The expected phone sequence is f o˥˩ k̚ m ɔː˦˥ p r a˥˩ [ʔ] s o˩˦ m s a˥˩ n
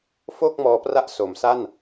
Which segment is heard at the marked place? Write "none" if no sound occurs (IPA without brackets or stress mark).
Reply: ʔ